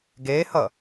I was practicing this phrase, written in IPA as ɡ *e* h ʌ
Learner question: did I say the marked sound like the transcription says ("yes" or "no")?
yes